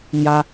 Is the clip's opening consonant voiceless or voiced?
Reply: voiced